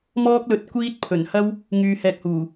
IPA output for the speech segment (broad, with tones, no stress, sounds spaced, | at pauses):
m ɔː˥ k̚ l ɵ˧ t̚ kʷ iː˥ t̚ pʰ ɵ˨˩ n h ɐ˥ w | ŋ yː˧ h ɛː˧ k̚ h uː˨˩